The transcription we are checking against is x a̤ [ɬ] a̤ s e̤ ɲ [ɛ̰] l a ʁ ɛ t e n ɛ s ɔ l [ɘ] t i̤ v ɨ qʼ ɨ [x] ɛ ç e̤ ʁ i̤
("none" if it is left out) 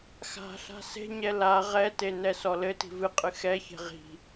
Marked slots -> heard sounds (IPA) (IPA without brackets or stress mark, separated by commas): ɬ, ɛ, ɘ, x